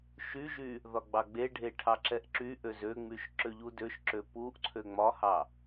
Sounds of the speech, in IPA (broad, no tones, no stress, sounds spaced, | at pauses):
ʃ y ʒ y | ð ɒ ɡ͡b ɑ ɡ͡b e ɖʱ e ʈʰ ɑ ǁ ɛ ʔ ǁ y ʔ ø z ø ŋ͡m y ʃ ǁ ø ʎ u d ø ʃ ǁ ø p u ʔ ǀʰ ø ŋ͡m ɒ h ɑ